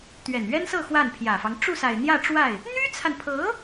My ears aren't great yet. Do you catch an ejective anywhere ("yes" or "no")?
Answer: no